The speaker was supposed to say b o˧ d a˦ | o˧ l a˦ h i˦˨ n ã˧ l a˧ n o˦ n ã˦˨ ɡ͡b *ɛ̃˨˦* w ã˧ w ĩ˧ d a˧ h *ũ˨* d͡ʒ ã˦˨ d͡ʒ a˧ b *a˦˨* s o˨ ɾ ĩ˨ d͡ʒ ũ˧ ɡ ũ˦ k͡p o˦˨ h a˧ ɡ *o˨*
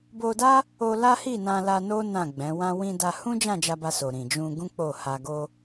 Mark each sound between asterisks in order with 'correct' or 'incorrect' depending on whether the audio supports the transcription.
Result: correct, incorrect: ũ˦, incorrect: a˧, incorrect: o˦

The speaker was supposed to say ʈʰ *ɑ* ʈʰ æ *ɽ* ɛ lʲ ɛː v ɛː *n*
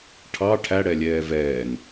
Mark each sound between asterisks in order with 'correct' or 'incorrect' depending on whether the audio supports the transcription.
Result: correct, correct, correct

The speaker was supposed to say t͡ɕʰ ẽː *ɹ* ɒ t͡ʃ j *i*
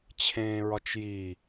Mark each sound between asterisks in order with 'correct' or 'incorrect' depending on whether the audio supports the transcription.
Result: correct, correct

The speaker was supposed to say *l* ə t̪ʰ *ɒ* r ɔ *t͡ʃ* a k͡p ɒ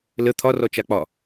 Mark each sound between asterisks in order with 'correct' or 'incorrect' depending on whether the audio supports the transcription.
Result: correct, correct, correct

